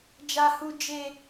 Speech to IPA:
d͡ʒa˦hu˦ d͡ʒe˦

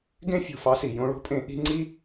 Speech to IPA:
ɡẽ˦ fʲo̤˨fɑ˦si˨ jõ˦ɭo̤˦pʼẽ˦ ʔi̤˦ŋ͡ǀi˦

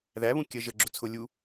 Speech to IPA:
ðæβũ kʲə ʒəɡ͡ǁʊ t͡sʰʊ lʲu

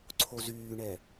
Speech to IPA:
ǀʰozyːɳɛ

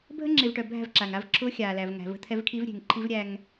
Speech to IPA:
bʱə˦ŋ͡ǁe˨vʈœ˨ bʱæ̤˦˨vǁa˨ŋa˦vǁʰʊː˦ xʲaː˨læ˨v ŋæ̤˨və̤˦t̪ʰɛ˦vkʰi˦v ɾʲe̤˨ŋǃʰi˦vɾʲæ˦ŋ

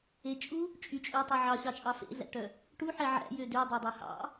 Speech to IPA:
et͡ʃʼu | t͡ʃʼyt͡ʃʼøtˤø ʕɑɕɑt͡ʃʼɑ fḛɮæ̰ʈœ | ʈuħɛ ʕæ̰jø dødˤɑdˤæ hɑ̰

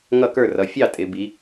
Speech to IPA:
ŋʌ˥˩kə˞˥˩rʌ˩˧ fʲɑ˥˩tʼɪ˩˧ bi˩˧

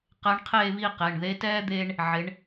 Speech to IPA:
qɛ˧˥ɳqʰeː˥˧βi˥˧qe˩˧˩ɳ ðe˧˥tɛː˥ d̪eː˥ɳ | ʕɪ˩˧ɳ

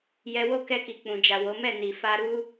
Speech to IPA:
jɛ˧wo˦ kɛ˧ki˨k͡pũ˨d͡ʒa˨ wo˨˦mɛ˦˨ni˨ fa˧ɾu˦

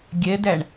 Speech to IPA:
ɡʲɛdæɳ

